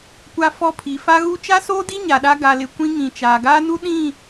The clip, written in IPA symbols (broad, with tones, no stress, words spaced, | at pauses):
kʷa˦fɔ˦ pʰi˨fa˦ɣu˦ t͡ʃa˦soː˦di˦ ɲa˨ɗa˦ ɡa˨lɪ˨ kʷĩ˦ ŋĩ˨t͡ʃaː˨ɡaː˦nu˦ ɗĩ˦˨